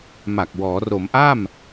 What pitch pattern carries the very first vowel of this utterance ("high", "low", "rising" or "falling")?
low